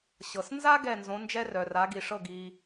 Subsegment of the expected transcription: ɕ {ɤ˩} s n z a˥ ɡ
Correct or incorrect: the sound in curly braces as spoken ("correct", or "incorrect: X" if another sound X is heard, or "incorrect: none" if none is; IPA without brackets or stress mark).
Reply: correct